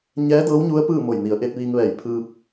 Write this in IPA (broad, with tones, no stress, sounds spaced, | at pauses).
ɲ ɛː˧˥ d ɤː˧˥ w ɲ u˧˥ ə̯ p ɯː˥˨ m o˧˩ j n i˩˧ ə̯ ʔ e˧ t̚ ʋ iː˧ ŋ ʋ ɛː˧˩ j pʰ ɯː˧ p̚